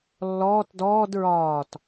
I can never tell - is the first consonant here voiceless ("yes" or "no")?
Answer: no